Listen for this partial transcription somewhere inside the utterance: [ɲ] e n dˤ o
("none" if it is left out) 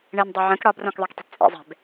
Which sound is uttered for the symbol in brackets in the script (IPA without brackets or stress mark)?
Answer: ɳ